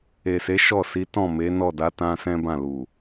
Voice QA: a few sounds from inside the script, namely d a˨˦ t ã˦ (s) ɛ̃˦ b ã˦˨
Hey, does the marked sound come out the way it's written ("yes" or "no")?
yes